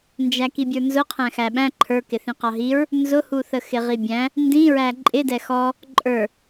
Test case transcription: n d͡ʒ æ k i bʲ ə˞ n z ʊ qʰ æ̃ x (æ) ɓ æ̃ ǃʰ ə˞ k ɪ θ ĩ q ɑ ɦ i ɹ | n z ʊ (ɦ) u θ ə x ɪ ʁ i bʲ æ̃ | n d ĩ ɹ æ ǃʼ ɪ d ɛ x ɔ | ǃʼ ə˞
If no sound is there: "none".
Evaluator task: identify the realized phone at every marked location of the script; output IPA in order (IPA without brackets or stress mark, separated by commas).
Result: æ, h